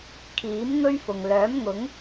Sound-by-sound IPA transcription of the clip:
kʰ iː˨˥ m ŋ ɵ˥ ɥ f ʊ˨ ŋ l œː˨˥ m ŋ ʊ˨˥ ŋ

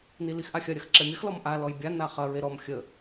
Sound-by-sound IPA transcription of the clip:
n i l i x ʔ a xʲ ɐ ɾʲ ɐ x ǁ ɛ mʲ ɐ x l ɔ m ʔ a l ɔ j bʲ a n a χ ɐ ɹ e ɾ ɔ m xʲ ə

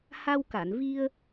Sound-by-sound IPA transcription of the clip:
h a˧ w k a˨˩˨ n v i˧ ə̯

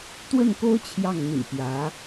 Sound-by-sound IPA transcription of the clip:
t̪ w ə˥˩ n k o˥ ʊ̯ t͡ɕʰ j ɑ˥˩ ŋ n̪ ḭ˨˩ p j ä˧˥

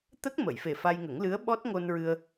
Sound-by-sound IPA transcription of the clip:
t̪ ə˦˥ k̚ m ə˨˩˨ j f e˨˩ f a˧ j ŋ ə˨˩˦ ŋ l ɨ˧˥ ə̯ ɓ ɔ˦˥ t̚ ŋ o˧ n ɹ ɨ˧ ə̯

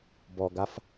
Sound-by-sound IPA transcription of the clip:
b ɔ ɡ a f

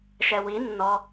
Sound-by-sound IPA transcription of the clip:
ʃ ɛ w i nː ɔ

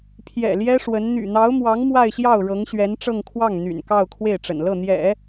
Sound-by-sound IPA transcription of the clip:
pʰ j ɛ̰˨˩ l j ɛ˥ ʂ w ə˧˥ n n̪ y̰˨˩ n̪ ɑ˧˥ ʊ̯ m w ɑ˧˥ ŋ m w a˥˧ ɪ̯ ɕ j ɑ˥˩ ʊ̯ ɻ ɤ˧˥ ŋ ɕ ɥ ɛ˧˥ n ʈ͡ʂ ɤ˥˧ ŋ kʰ w ɑ˥˩ ŋ n̪ y̰˨˩ n k ɑ˥˧ ʊ̯ kʰ w e˥˩ ɪ̯ ʈ͡ʂ ə̰˨˩ n l ɤ˥˩ n̪ j ɛ̰˨˩˦

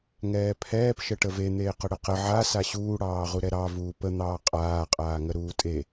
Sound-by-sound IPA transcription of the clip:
ŋ ɛː pʰ ɛː p ʃ ə ʈ ə v e n̪ eː q ə ɽ ə q ə ʕ a s a ɕ uː ɽ ɑː ʁ u ɾ ɛ ɾ ɑ v uː p ə n̪ ɑː qʼ aː qʼ aː ŋ ə ɾ uː tʼ e

